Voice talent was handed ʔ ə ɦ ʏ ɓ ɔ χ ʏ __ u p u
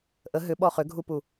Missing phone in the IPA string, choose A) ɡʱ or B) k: A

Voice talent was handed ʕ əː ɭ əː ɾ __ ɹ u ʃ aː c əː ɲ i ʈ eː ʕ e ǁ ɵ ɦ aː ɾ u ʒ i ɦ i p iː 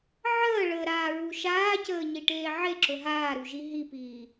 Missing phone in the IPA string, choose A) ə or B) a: B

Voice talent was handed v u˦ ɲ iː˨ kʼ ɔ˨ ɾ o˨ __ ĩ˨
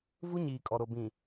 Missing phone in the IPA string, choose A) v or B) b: B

